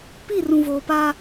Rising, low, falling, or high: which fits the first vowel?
falling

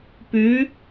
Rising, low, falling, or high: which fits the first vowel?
rising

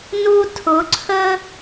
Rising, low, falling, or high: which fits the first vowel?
high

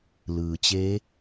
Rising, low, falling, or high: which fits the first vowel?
low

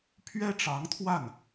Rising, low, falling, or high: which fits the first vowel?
high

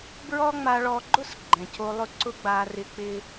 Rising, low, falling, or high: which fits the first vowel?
high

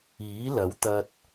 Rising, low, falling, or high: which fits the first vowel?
rising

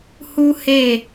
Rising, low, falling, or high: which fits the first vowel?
high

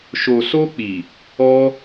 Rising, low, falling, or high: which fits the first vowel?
low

